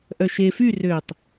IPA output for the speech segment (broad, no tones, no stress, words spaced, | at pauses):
ʔœʃe fy røtˤ